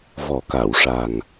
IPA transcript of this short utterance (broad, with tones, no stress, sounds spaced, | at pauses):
v ɔ˨˩˦ k a˨˩˨ w ʂ a˨˩ ŋ